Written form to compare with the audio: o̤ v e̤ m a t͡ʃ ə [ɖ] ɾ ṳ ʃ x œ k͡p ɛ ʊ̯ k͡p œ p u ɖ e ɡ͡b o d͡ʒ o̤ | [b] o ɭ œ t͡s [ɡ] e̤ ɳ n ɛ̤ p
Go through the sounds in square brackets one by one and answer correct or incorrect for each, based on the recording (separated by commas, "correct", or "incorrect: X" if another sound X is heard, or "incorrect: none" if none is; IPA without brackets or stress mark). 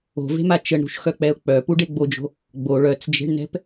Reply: incorrect: ɳ, incorrect: ɡ͡b, incorrect: d͡ʒ